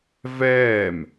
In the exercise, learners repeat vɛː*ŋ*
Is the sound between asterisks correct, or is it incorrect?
incorrect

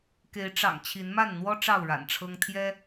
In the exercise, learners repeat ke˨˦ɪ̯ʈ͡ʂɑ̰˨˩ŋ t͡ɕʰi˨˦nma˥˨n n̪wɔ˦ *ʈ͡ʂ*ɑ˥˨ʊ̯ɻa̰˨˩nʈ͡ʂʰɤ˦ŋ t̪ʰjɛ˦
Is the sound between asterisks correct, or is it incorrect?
correct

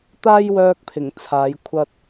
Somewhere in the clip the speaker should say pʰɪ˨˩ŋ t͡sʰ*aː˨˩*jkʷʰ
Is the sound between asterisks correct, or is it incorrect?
incorrect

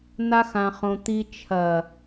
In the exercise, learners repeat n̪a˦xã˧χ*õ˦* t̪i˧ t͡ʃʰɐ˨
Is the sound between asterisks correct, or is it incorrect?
incorrect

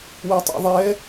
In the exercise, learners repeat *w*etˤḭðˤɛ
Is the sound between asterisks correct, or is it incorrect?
correct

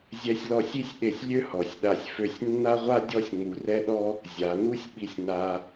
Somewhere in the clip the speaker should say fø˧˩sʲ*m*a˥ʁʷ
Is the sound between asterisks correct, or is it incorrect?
incorrect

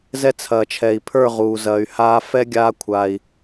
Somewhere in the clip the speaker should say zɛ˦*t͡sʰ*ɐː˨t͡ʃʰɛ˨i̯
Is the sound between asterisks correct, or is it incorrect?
correct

